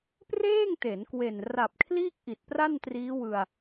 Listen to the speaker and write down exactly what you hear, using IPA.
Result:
p r eː˥˩ ŋ t e˩˦ n k w e˨˩ n r a˨˩ p̚ kʰ l iː˥˩ k̚ ʔ i˨˩ t̚ p r a˥˩ n t r iː˦˥ w ɯ˧ a̯

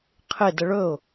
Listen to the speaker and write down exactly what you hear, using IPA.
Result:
qʰ ɪ d ə ɭ ɵ ʊ̯

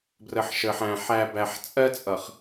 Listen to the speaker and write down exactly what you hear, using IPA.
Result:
b r ə˨ ħ ʃ ə˨ ħ æ̃˨ ħ æ˨ b æ˨ ħ t͡sʼ ɜ˦ t͡sʼ ʌ˨ χ

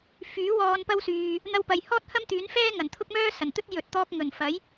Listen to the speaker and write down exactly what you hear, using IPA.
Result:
f yː˨˥ w ɔː˧ n p ɐ˥ w s yː˧ | n̪ ɐ˧ w p ɐ˨ j h ɔː˥ t̚ h ɐ˥ m t̪ yː˨˥ n f ɛː˥ ŋ ɐ˨˩ n t̪ʰ ʊ˥ k̚ m œː˥ s ɐ˨˩ n t̪ ɵ˥ t̚ j ɵ˨ t̚ t̪ ɔː˧ k̚ ŋ ɵ˨˩ n f ɐ˨˥ j

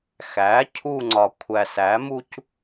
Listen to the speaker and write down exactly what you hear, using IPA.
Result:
x æ˩˥ cʰ u˦˨ ŋ͡ǀ ɒ˨ kʷʰ æ˨ s æ˩˥ m u˦ c

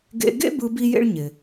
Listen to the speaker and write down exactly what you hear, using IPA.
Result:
ɡ ḛ˧ ɡ ḛ˥ b ɯ˧ b i˥ j ḛ˥ ɭ ɲ ɪ˩

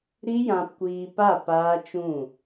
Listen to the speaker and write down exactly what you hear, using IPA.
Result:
ɾ i˦ j ã˧ p kʷ iː˧ p a˦˨ p aː˦ t͡ʃ ũ˦˨

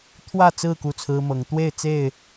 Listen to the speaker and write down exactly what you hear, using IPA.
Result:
t̪ʰ w ä˥˨ t͡s ɹ̩˥˨ k u˥˨ t͡sʰ ɹ̩˦ m ɤ˨˦ ŋ t̪ w e˥˨ ɪ̯ t͡s e˥˨ ɪ̯

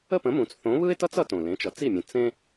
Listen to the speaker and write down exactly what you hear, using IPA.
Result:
ə˥˩ p ə̃˩˥ m ũ˩ t͡s θ õ˩˥ β ɯ˥ ɪ̯ t ʌ˥ t͡s ʌ˧ t õ˩ l ẽ˩˥ t͡ʃ ʌ˩˥ t͡s i˥˩ mʲ ə̃˩˥ t͡s ẽ˧

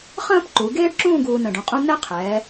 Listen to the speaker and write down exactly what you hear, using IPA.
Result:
χ ə̃ː˥ p ǃ u˩˧ ɡ eː˥ ɖ ǁ ũː˥˧ ɡ uː˧ n ə̃˧˩ ɖ ũ˧˩ qʼ ũ˥ n ɛ˥ qʰ ɛː˩˧

